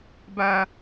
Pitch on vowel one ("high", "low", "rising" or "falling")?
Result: high